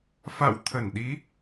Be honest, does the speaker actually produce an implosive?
yes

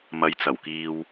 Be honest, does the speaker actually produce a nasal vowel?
no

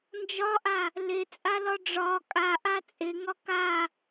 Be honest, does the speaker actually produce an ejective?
yes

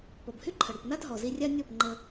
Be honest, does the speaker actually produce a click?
yes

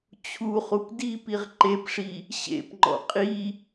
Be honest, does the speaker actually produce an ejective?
yes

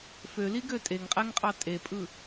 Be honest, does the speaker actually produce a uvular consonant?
yes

